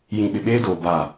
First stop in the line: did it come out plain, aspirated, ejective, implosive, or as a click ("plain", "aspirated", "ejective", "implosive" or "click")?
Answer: implosive